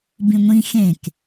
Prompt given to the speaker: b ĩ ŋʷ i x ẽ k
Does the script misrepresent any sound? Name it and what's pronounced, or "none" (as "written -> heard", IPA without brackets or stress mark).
i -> ĩ